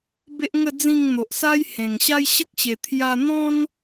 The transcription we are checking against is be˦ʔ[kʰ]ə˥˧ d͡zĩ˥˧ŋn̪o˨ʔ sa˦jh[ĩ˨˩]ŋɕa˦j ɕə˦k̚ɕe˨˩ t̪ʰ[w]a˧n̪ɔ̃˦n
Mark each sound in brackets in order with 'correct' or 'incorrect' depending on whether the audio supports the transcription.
incorrect: ŋ, incorrect: ẽ˨˩, incorrect: j

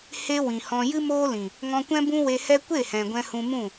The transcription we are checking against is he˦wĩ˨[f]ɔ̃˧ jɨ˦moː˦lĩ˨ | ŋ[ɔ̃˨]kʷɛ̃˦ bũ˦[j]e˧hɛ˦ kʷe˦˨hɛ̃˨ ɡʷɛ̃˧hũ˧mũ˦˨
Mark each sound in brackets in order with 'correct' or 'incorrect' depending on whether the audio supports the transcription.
incorrect: h, incorrect: ɔ̃˧, incorrect: w

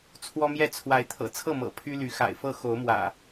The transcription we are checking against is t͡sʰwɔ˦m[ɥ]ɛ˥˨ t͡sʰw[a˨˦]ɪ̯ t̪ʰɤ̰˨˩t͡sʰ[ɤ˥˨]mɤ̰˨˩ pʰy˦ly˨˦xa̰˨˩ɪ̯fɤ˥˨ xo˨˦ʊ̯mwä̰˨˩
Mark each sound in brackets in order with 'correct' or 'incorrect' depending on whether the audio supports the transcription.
incorrect: j, correct, correct

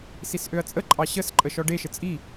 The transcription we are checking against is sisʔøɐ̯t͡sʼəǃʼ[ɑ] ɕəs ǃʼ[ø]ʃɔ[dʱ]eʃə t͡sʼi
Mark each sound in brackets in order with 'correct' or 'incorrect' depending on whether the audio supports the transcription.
correct, incorrect: ə, incorrect: ɖ

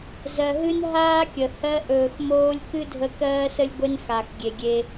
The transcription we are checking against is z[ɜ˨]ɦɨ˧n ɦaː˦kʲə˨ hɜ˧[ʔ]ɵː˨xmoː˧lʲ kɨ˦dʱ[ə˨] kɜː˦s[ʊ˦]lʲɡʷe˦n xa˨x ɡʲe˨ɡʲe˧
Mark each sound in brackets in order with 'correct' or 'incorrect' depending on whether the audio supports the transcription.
correct, correct, incorrect: ə˧, incorrect: ə˦

